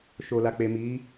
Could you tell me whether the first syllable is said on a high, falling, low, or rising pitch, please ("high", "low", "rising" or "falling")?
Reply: low